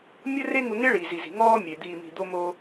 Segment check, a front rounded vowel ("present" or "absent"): absent